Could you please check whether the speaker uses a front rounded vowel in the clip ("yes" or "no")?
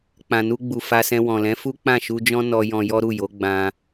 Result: no